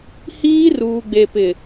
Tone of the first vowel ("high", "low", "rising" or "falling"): high